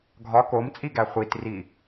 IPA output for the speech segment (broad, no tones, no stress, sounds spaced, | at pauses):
ɡʱ ɒ k o m t͡sʼ i ɡ æ χʷ i t r i